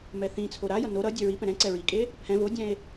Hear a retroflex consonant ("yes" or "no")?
no